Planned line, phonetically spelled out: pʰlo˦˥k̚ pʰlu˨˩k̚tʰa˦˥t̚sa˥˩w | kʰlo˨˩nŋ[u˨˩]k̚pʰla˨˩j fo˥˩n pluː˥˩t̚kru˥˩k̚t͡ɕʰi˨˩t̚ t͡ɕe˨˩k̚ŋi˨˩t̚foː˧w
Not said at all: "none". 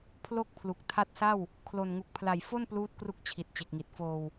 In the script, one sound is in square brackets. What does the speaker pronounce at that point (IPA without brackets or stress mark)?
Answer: u˨˩